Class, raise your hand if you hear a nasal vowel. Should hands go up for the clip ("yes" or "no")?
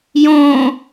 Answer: yes